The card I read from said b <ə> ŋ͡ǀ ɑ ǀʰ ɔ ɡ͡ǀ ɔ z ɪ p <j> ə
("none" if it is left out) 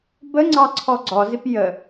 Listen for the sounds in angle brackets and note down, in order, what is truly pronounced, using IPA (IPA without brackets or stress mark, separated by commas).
ə, j